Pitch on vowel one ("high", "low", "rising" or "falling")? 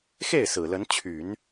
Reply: falling